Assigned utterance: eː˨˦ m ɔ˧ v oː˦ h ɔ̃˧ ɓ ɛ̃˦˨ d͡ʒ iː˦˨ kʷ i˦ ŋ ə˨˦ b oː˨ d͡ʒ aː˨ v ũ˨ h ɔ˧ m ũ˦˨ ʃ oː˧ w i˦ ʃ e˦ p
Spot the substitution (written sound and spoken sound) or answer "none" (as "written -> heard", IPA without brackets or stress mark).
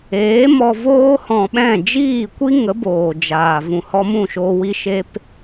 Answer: none